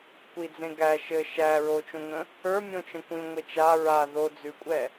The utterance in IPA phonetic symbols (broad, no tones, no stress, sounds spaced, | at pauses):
kʷ i d͡z ẽ ɡ æ ʃ ɘ ʃ æ ɹ o t͡ʃ õ ŋ ə̃ | ə˞ mʲ õ t͡ʃ ə̃ kʷ ĩ ŋʷ e t͡ʃ a ɹ a ð o d͡z ʉ kʷʼ ɛ